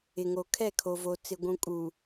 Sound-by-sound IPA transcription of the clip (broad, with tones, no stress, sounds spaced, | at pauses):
ɪ˨ ŋ o˨ kʰ ɛ˦˨ kʰ o˨ v o˨ t͡s ɪ˨ ɡʷ ũ˨ kʼ u˨